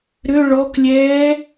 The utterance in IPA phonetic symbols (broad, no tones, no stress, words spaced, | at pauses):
ɾʏ ɭɔklʲɛː